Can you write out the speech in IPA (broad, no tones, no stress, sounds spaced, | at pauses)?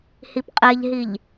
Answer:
h i p qʼ e ʎ ɦ i ʎ